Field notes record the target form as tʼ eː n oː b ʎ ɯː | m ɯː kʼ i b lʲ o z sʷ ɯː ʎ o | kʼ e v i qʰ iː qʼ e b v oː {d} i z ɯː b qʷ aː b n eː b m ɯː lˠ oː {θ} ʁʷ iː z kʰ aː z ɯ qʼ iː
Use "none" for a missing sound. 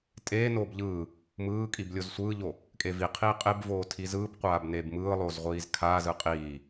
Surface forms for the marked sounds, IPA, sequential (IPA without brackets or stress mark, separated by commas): tʰ, z